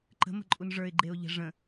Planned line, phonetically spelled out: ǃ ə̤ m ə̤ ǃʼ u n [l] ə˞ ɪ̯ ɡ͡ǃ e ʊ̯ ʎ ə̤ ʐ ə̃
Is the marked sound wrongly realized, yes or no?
yes